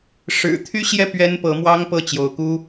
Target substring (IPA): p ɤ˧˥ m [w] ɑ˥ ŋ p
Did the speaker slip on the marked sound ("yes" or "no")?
no